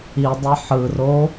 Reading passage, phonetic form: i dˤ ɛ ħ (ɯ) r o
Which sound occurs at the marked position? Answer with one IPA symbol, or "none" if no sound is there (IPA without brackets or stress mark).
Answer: ɯ